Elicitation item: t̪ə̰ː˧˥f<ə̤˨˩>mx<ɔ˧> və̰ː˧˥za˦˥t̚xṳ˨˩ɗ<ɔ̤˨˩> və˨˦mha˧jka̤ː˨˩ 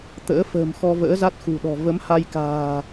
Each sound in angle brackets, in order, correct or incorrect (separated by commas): incorrect, correct, correct